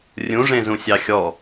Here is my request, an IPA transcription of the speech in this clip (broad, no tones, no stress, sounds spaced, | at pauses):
rʲ ũ ʐ ẽ z ũ sʲ ɑ xʲ ɔ